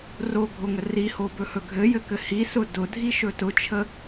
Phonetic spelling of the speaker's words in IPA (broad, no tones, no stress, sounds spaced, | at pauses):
r o ɡʱ o ŋ ə r i h o b ɵ h ɵ ɡʱ ɘ j ɘ k ɘ h i s ʊ d ʊ dʱ i ʃ ɵ t ʊ t͡ʃʰ ə